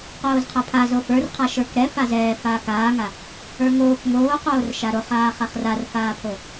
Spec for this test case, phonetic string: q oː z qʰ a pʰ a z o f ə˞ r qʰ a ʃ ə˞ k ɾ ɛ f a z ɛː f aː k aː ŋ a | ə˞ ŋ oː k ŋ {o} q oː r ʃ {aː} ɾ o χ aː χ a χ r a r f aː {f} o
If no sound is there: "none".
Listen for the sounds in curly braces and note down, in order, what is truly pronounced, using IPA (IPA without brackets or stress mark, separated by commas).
oː, a, pʰ